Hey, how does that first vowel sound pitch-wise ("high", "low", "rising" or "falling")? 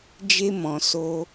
high